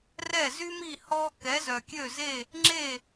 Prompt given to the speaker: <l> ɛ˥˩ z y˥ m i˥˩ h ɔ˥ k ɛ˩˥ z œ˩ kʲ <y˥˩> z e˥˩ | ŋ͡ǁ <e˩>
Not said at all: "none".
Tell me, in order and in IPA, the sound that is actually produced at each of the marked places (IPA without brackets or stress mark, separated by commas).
r, ø˥˩, e˥˩